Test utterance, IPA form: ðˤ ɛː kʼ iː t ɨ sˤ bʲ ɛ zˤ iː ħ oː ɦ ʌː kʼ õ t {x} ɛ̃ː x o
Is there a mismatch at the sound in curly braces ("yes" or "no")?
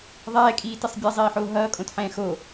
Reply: yes